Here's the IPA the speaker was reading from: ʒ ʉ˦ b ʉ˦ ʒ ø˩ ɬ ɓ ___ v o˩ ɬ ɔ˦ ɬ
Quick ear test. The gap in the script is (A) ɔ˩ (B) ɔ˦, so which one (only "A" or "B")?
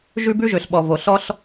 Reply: A